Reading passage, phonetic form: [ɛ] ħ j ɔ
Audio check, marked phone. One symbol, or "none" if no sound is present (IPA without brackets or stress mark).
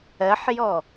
ɜ